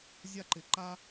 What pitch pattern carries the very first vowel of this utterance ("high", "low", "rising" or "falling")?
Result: high